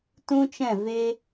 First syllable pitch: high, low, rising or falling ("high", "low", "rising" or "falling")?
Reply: high